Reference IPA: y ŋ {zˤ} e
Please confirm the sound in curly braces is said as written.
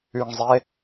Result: yes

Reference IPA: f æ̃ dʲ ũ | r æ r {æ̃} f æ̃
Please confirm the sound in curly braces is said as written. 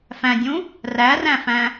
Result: yes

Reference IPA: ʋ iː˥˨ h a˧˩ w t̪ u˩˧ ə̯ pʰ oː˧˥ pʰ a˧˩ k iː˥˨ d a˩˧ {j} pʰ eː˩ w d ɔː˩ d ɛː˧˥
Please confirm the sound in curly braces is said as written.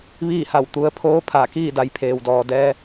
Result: yes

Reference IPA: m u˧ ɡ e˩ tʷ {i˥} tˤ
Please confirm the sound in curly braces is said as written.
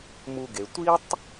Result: yes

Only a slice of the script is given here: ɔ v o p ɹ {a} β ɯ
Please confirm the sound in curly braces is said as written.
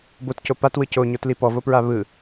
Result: yes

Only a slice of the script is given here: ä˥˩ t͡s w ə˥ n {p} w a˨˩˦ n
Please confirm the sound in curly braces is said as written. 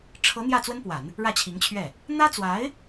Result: yes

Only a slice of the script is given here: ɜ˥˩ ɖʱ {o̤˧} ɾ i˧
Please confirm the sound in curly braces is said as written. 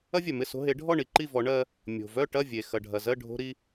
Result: yes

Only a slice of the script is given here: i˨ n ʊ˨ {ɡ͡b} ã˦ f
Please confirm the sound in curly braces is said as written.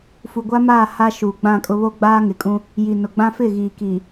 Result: yes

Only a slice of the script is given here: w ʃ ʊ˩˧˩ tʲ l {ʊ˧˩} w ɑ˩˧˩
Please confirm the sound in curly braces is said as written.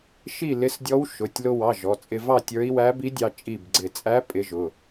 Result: no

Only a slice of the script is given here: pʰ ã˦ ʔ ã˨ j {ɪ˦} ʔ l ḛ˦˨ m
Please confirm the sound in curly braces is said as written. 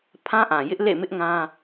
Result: yes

